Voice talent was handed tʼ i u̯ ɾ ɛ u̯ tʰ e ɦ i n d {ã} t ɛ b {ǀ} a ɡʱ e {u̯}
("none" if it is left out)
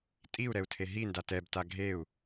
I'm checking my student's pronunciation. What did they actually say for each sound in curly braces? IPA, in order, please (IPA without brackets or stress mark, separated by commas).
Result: a, t, u̯